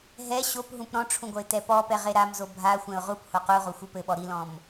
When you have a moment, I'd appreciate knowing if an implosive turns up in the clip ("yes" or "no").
yes